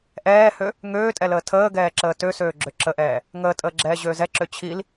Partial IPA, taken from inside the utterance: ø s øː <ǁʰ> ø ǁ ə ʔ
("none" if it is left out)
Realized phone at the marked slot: ɡ͡ǁ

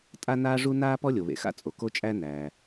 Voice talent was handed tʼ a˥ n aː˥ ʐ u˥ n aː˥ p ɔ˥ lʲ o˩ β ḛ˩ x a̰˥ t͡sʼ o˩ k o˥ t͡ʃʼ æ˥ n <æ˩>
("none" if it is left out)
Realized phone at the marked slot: æː˩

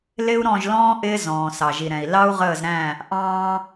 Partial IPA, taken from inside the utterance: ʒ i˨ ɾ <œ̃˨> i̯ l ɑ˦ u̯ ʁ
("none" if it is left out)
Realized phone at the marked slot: ɛ̃˨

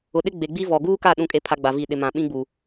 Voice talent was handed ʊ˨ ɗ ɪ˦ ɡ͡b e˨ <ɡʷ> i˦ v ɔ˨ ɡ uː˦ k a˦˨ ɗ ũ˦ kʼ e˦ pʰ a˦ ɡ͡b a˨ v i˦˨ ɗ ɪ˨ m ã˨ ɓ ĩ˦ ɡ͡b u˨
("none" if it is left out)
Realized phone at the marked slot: ɡ͡b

